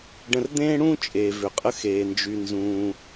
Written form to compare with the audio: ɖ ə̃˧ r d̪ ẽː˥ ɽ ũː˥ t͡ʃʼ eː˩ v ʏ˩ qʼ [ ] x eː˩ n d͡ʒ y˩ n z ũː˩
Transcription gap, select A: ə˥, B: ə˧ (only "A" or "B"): B